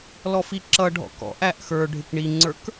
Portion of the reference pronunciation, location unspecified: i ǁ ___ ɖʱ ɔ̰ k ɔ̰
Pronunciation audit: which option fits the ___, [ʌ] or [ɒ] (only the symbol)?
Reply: ʌ